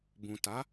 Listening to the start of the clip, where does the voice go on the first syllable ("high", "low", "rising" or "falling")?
low